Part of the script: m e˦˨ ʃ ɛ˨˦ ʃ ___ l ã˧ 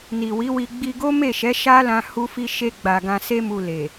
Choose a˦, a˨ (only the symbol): a˦